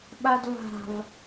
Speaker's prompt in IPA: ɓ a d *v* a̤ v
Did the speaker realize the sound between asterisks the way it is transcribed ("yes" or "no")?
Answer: yes